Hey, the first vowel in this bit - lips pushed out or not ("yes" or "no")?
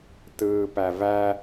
no